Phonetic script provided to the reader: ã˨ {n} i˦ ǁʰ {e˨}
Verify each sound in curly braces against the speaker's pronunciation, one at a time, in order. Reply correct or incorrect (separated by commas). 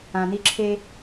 correct, incorrect